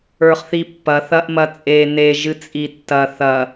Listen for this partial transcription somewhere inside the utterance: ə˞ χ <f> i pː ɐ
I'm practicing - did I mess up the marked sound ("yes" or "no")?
yes